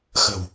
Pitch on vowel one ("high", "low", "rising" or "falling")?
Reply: low